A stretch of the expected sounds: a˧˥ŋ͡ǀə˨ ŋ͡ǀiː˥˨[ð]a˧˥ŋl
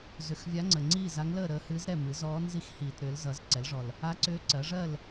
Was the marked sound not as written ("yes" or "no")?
yes